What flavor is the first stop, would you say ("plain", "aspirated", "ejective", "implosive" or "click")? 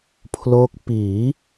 aspirated